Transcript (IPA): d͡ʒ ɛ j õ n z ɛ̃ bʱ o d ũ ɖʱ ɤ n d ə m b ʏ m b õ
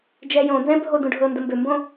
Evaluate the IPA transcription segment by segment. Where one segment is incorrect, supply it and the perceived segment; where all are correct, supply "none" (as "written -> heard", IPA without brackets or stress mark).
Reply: none